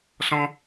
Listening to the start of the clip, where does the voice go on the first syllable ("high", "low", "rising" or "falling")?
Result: high